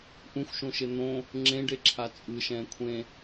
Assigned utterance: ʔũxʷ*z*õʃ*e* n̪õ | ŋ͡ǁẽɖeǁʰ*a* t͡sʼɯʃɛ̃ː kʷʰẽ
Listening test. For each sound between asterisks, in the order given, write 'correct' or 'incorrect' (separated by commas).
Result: incorrect, correct, correct